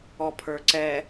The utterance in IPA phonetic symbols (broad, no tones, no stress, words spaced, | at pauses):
ɔpʰə˞ǀɛ